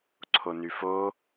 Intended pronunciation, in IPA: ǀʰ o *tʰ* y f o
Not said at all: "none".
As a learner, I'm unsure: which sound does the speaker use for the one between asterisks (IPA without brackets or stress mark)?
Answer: n